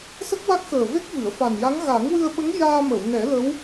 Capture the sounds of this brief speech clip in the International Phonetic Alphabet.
s ə˦˥ k̚ w a˦˥ k̚ x əː˨˩ v e˦˥ k̚ v ɨ˨˩˨ ə̯ f a˨˩ n j a˧˥ ŋ ɣ a˨˩˦ ŋ w ɨ˧ ə̯ ɓ ə˧˥ ŋ j aː˧ m ə˨˩˨ w n ɛ˨˩˦ l ə˧˥ w

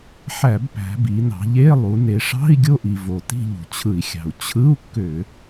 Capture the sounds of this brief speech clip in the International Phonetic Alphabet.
ħ æ˧˩˧ b p æ̤˩˧ b i˩˧ n ɑ̤˩˧ ʎ e˧˥˧ lˠ u˩˧ n e˩˧ ʂ ɑ̤˧˥˧ i̯ ɡʲ o˦˨ ʔ i˩ v o˩ t i̤˦˨ ʎ ṳ˩ t͡ɕʰ ɯ˧˩˧ i̯ xʲ ɑ̤˩ u̯ t͡ɕʰ ɯ˧˥˧ u̯ kː ø˧˩˧

